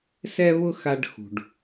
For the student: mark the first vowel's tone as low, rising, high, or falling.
high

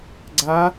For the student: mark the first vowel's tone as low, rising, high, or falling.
rising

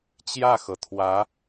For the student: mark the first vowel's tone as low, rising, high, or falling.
falling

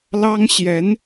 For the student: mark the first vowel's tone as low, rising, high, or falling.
high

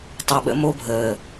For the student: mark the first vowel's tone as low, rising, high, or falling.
low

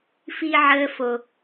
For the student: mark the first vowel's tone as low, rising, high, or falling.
high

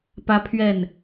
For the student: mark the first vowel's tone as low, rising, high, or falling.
high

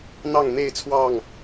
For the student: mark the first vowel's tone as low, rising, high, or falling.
falling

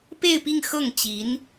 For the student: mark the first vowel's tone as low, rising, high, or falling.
falling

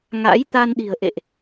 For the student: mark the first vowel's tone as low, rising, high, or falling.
rising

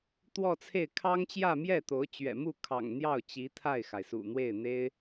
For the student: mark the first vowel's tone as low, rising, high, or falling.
falling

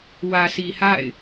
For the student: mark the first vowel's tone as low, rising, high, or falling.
low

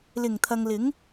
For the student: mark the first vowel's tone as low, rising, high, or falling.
low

